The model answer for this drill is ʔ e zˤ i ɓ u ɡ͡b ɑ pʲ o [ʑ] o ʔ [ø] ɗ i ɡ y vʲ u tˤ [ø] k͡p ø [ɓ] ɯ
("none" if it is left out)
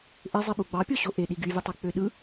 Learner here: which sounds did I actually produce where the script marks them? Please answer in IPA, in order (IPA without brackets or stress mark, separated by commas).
ɕ, e, ø, ɗ